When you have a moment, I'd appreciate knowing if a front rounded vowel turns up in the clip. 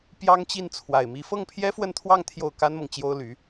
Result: yes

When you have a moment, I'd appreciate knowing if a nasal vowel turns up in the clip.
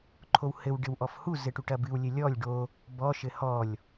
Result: no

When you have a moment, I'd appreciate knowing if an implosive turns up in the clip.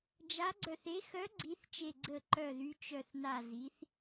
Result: no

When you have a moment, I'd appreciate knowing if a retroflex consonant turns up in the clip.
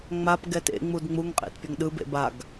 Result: no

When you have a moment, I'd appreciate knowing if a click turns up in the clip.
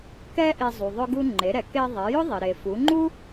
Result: yes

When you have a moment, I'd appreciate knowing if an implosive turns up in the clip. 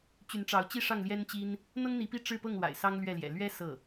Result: no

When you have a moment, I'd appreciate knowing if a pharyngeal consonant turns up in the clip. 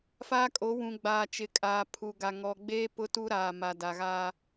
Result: no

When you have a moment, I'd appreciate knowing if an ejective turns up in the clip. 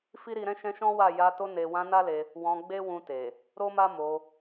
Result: no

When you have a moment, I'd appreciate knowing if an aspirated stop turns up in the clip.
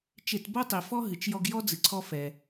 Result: yes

